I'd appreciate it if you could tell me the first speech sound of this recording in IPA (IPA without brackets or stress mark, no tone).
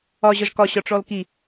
ɒ